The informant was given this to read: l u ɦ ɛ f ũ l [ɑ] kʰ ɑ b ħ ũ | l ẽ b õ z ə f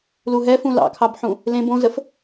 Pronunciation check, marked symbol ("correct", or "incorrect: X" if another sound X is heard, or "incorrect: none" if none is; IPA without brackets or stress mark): incorrect: ɑ̰